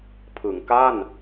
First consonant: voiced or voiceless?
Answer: voiceless